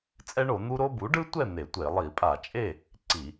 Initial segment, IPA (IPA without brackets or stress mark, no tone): t͡sʼ